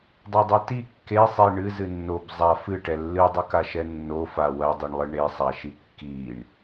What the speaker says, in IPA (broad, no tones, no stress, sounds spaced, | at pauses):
dˤ o dˤ e t i kː e sˤ i ɳ ɨ z ɨ nː o b zˤ a f ɨ ʈ ɛ lː ɨ dˤ ɨ k a ʃ ɛ nː o f a w ɐ dˤ i ɳ lˠ ɨ ɳ e sˤ a ʃ i kː i ɳ